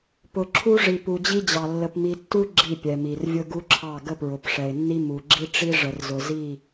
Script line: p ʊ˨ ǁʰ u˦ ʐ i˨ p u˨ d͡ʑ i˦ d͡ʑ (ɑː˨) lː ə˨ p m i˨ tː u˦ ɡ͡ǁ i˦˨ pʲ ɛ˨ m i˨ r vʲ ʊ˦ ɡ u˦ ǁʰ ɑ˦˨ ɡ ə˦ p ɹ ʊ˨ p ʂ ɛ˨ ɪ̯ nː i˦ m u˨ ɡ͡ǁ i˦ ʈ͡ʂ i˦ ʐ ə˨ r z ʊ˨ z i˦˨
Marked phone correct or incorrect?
incorrect